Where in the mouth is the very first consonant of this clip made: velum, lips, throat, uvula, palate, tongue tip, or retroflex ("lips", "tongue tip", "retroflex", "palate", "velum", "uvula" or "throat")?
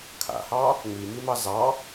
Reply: velum